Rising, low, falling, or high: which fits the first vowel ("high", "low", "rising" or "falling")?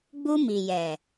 high